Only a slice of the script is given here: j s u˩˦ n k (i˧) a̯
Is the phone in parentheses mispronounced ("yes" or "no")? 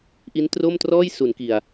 yes